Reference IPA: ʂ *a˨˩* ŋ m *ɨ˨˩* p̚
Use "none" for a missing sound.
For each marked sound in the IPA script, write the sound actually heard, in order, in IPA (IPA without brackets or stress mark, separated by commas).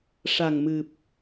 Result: a˨˩, ɨ˨˩